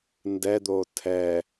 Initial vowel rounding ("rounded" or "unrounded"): unrounded